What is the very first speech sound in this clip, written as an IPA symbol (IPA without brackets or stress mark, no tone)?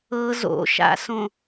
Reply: ɤ